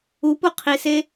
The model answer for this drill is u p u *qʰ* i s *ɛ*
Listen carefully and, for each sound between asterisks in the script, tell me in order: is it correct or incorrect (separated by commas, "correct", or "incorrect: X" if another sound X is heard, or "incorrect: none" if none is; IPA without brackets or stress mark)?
correct, incorrect: e